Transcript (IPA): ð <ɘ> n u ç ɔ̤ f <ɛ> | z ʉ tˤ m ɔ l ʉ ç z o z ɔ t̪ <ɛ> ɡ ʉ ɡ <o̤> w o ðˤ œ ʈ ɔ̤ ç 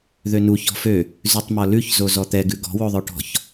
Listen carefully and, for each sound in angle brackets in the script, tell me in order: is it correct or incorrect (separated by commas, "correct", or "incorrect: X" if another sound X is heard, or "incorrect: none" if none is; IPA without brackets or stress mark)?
incorrect: ø, incorrect: ø, correct, incorrect: ɔ̤